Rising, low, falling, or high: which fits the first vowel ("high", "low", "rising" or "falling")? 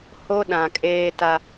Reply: high